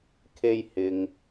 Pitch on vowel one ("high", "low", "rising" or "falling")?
high